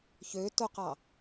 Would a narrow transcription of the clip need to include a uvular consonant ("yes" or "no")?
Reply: yes